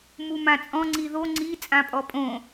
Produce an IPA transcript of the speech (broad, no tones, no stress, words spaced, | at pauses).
mumãt͡sʼɔ̃ ŋ͡ǀiðo ŋ͡ǀi t͡sʼãpʼɔpʼõ